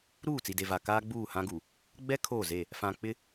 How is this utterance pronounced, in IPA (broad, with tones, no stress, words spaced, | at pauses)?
ɾuː˦˨t͡si˨de˨va˨ kaː˦ɡ͡buː˦˨hã˦ɡu˨ | ɡ͡bɛ˦ kʰoː˦˨ze˦˨ | fã˨k͡pɪ˦